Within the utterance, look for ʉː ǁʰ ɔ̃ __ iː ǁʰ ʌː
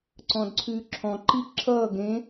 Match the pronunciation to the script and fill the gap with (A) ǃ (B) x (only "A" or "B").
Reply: A